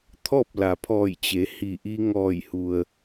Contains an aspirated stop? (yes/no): yes